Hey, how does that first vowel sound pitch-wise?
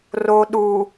low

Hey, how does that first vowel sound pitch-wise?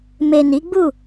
low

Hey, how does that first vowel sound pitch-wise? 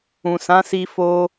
low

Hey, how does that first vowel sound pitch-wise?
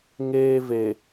high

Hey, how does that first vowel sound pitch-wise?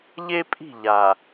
high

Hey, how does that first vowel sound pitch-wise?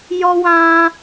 high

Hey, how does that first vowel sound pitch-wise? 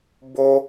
high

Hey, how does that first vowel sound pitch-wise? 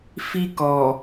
high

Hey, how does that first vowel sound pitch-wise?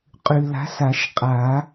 low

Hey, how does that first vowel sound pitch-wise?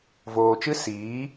low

